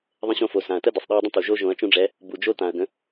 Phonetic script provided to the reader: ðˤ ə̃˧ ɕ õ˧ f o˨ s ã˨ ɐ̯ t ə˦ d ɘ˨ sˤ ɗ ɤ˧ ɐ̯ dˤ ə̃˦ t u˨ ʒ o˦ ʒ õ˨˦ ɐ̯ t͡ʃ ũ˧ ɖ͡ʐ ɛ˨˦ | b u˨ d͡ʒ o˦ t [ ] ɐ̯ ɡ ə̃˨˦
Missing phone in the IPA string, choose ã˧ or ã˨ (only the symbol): ã˨